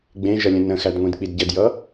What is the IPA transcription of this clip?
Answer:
ɡ͡b ẽ ʒ ʌ lʲ ə̃ n ə̃ x æ d ŋʷ ĩ d k͡p i d ɟ ə d j ʌ

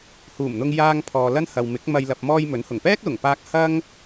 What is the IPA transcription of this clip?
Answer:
h uː˨˩ m n̪ ʊ˧ ŋ j aː˧ ŋ pʰ ɔː˨ l ɐ˥ n h ɐ˨ w m ɪ˨˥ k̚ m ɐ˧ j l ɐ˨ p̚ m ɔː˧ j m ɵ˨˥ n h ʊ˨˩ ŋ p ɛː˥ k̚ l ʊ˨˩ ŋ p aː˧ k̚ h ɐ˥ ŋ

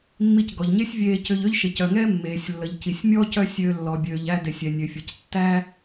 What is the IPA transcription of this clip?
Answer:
mː i˧ c ɡ ɔ˩ ʎ ɲ e˥ sʲ vʲ eː˧ c ʏ˧ ʎ ø˥ ʎ ʃ e˩ c œ˩ ŋ ɛː˥ mː eː˩ sʲ lː ə˩ ʎ c i˩ sʲ mʲ ɔ˥ c œ˥ sʲ øː˧ lː ɔ˩ bʲ øː˩ ʎ æ˧ d e˩ sʲ ɛ˩ nʲ ø˩ fʲ ə˩ c tː æ˥

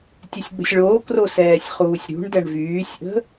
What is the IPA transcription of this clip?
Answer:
tʲ ɛ sʲ ɡ͡b ə̤ sʲ ɭ oː k r o s ɛː sʲ χ uː sʲ ɾ ṳ ɳ d ɛ ɳ v yː sʲ ʔ ə̤

